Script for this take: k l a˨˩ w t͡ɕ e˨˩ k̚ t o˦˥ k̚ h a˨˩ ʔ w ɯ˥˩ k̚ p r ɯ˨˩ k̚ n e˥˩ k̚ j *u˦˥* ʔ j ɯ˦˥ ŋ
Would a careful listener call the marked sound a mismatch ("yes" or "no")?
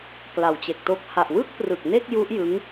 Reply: no